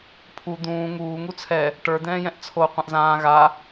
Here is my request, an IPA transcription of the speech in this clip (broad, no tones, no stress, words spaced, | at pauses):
pʰu d̪ũː ŋuː ŋut͡sʰɛ | ʈə˞d̪ɛ̃ːjɛ̃ʔ t͡sʰo qʷɛ̃ʔzãː ɣa